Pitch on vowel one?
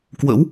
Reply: rising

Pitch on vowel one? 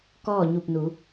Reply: falling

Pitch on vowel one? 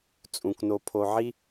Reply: low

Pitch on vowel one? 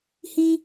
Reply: high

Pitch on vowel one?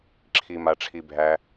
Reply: low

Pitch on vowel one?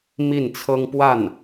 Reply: falling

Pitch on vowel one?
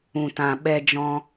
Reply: low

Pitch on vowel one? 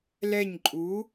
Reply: falling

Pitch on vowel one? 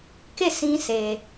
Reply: falling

